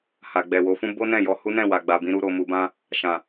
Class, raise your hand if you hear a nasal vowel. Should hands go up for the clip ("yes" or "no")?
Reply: yes